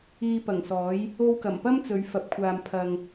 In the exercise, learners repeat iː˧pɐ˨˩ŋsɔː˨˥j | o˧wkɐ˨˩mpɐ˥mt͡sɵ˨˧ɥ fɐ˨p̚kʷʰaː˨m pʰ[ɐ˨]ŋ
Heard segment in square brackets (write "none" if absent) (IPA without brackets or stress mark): ɐ˨